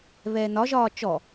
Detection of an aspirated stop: absent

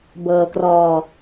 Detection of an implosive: absent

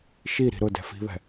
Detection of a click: absent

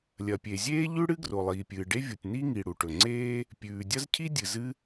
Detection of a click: present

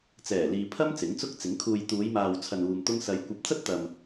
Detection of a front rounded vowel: absent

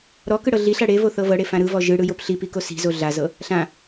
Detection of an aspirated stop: absent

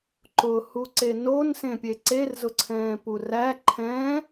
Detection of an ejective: absent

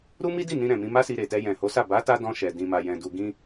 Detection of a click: absent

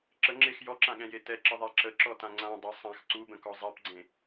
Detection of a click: present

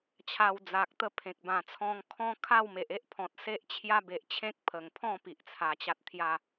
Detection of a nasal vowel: present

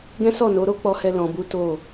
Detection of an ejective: absent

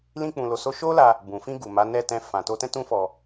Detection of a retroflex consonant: absent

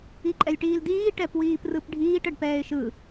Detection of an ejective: present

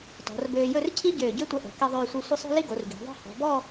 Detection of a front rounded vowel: present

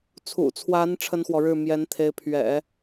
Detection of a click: absent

